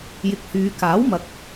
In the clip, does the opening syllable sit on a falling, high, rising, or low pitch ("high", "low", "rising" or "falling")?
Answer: low